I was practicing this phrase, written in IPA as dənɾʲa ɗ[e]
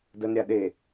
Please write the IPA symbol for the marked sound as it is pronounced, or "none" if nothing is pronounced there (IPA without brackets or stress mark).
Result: e